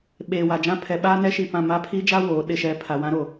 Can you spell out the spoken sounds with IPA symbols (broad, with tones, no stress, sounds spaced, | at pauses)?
ɓ eː˨ w a˨ d͡ʒ ã˦ pʰ ɛ˨ ɓ aː˦ n ɛ˦ ʃ i˦˨ p ã˦˨ m a˦˨ pʰ iː˦ d͡ʒ a˦ w oː˨˦ ɗ ɪ˦ ʃ ɛ˦ pʰ a˨ w ã˦ ɾ o˨